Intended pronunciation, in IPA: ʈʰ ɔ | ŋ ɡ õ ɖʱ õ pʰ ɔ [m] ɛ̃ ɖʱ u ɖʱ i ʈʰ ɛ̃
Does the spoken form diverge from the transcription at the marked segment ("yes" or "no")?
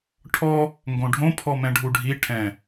no